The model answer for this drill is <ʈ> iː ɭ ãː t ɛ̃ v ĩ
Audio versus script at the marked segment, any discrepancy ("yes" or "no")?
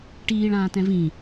no